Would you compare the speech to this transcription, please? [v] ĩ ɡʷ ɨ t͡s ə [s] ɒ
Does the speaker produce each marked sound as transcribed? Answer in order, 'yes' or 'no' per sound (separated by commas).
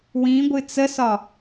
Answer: no, yes